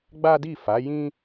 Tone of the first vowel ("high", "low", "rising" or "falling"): high